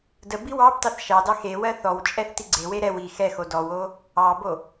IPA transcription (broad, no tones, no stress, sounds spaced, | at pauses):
d ə b i w ɑ b t ɑ θ ʃ ɑ d ɑ x e w ɜ θ ɔ w t͡ʃʼ ɛ θ t i ɡ͡ǀ e w e ɾ ɛ w i x ɛ x o d ɔ w o | ɑ b o